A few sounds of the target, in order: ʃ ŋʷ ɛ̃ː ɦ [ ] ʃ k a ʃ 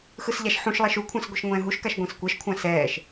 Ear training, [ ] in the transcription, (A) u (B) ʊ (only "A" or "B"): A